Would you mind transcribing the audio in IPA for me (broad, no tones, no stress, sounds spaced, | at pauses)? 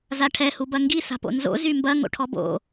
z a ʈʰ ɛ h u b ɐ ŋ ɡ i s a̤ p o̰ n z o̰ z y m b ɐ ŋ o̰ ʈʰ ɔ b o̰